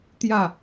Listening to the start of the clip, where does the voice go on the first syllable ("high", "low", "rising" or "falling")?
falling